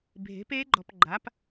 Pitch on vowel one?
rising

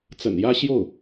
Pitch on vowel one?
low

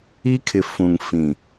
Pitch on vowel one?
high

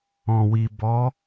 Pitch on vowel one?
low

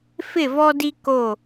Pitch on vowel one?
falling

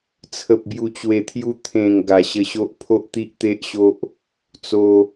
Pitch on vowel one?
low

